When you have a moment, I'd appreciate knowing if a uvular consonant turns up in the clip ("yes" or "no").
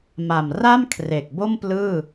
no